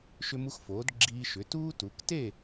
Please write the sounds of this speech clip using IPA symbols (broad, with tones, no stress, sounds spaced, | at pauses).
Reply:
ʃ ʏ˦ m u˦ x f oː˩˥ d ɡ͡ǁ iː˦ ʃ ʏ˩˥ t uː˦ t u˩˧ k t e˥˨